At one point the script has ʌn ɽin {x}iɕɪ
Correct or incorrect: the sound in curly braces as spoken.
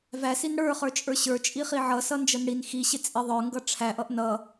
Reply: correct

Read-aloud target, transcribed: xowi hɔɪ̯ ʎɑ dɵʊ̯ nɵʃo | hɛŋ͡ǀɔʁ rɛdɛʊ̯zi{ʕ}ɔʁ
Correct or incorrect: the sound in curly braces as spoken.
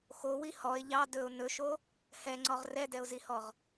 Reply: incorrect: h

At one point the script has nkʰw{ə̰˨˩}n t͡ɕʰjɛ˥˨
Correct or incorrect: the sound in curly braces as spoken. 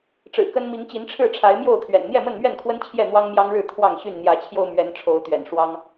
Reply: incorrect: ə˦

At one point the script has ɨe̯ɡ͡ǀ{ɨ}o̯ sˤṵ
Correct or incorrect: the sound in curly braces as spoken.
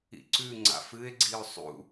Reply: incorrect: i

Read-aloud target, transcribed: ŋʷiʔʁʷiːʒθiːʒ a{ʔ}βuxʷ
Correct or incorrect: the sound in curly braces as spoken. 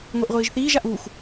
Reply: correct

